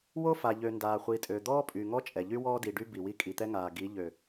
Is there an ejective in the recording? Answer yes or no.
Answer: yes